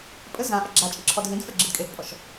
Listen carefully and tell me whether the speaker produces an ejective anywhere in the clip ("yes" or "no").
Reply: yes